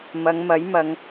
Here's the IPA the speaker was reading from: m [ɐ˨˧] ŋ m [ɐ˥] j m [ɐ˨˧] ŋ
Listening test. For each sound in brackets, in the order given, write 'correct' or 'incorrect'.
correct, incorrect: ɐ˨˥, correct

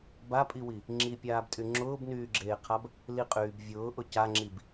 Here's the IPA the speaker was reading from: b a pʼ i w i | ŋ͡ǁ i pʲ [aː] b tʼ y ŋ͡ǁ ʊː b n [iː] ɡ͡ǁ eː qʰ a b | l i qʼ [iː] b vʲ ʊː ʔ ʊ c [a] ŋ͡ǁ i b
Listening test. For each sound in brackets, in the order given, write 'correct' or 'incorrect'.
correct, incorrect: yː, incorrect: yː, correct

